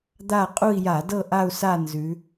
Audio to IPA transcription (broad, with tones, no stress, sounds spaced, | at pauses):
d̪ a˦˨ qʼ u˦˨ i̯ j a˧˩˧ d ɤ˦˨ ʔ a˦˨ u̯ s a˦˨ n z ʉ˩˧